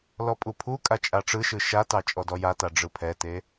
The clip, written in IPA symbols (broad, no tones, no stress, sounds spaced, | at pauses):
l ɔ pʼ u pʰ u kʼ a t͡ʃʼ a ʈ͡ʂ ɯ ʃ ɯ ʃ a t ɑ t͡ʃʼ ɔ d ɔ j a t a ɖ͡ʐ ɯ pʰ ɛ t e